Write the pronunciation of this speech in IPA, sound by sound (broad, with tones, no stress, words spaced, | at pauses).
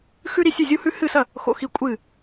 xʉ˥ɾi˥˧sʲʉ˥˧ zʲu˥hʉ˥ hɨ˥˧sɐ˥˧ | xo̰˥˧xi˥˧ kʷʼɨ˥˧